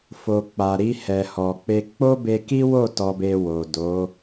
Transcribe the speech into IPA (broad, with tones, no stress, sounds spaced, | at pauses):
f o˨ k͡p a˨ ɾ i˧ h ɛ˨ h ɔ˨ k͡p e˧ k͡p o˦ b e˧ k i˦ w o˦˨ t ɔ˧ b e˧ w o˨ d o˨˦